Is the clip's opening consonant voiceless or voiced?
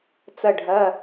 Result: voiceless